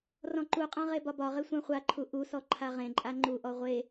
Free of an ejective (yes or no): no